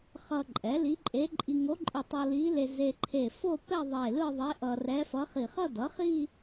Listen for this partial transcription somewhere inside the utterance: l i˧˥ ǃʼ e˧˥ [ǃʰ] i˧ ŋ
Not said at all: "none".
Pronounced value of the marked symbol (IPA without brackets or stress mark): ǃʼ